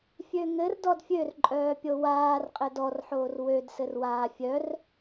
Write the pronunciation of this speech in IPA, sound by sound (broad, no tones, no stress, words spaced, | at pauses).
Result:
fʲøŋɘr dɔdfʲørǃʼœː pʲowaːrqʼɘ dɔrħoːr wødsɘr waːfʲœr